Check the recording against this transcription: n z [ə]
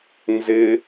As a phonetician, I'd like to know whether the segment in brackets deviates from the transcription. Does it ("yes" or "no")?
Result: yes